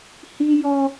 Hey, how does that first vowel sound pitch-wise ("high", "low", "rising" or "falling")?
high